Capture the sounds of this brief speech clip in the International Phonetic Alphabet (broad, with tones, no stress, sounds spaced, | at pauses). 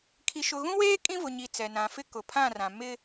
kʰ i˨ ʃ ʊ˨ ɣ ũ˦ w eː˦ kʼ ĩ˦ v ʊ˨ ɲ i˨ t͡s ɛ˨ n ã˨ f ɪ˦ k ʊ˨ pʰ ã˦˨ r ã˨ m ɪ˦